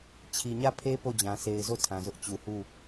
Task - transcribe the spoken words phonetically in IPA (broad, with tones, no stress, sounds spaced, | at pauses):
t͡ɕʰ i˨ ɲ ä˦˨ pʰ e˦ p o˦˨ d͡ʑ ã˨ sʰ e˨ ɪ̯ z o˦˨ tʰ ã˨ z ʊ˦ ʔ t͡ɕ u˨ h u˦˨